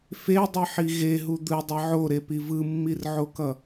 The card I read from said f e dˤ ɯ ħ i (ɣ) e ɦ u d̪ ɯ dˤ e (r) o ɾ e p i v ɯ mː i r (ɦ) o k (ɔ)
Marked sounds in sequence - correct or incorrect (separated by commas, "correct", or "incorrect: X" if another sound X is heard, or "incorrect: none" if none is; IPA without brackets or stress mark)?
correct, incorrect: ʕ, incorrect: ʕ, incorrect: ʌ